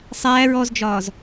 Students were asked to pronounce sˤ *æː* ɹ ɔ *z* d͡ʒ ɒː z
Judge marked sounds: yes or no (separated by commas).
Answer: yes, yes